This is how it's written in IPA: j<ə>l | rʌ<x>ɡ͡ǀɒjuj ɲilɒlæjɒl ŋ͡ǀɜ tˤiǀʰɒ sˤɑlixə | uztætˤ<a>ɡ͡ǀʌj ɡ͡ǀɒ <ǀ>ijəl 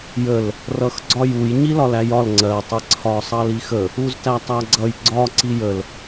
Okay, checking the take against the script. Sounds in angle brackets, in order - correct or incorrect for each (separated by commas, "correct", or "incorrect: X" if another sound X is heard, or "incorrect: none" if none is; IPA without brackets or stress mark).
correct, correct, incorrect: æ, correct